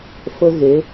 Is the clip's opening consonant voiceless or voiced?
voiceless